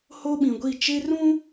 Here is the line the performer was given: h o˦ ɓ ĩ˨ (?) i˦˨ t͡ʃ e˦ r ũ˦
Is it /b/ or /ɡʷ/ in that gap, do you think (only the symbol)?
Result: ɡʷ